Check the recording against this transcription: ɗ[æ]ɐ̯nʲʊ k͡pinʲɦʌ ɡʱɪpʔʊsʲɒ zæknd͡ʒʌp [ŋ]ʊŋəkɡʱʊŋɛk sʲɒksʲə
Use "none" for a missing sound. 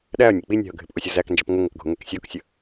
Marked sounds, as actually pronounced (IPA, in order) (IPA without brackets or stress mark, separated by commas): æ, ŋ